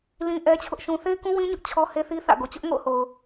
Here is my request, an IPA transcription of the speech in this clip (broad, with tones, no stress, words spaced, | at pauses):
lĩ˦ʔɛ˦t͡ɕʰʊ˦ʔʃũ˦ θe˦ɪ̯kũ˦wĩ˦ɲʊ˦ʔ t͡ɕʰɔ˦he˦θi˦ θä̰˦˨ɡo˨ t͡ɕʊ˦ʔŋo̰˦˨ʊ̯ho˨ʊ̯